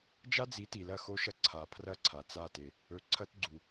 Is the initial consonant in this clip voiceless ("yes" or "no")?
no